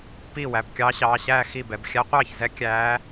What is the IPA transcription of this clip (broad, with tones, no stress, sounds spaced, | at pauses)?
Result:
p iː˥˩ w æ˩˧˩ b kʲ ɑː˧˥ ɕ ɑː˩˧˩ ɕ æː˥˩ x i˥˩ b ɛ˩˧˩ b xʲ æ˧˥ qʷ ɑː˥˩ ç z ɛ˧˥ kʲ æː˧˥